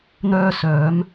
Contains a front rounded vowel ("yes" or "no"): yes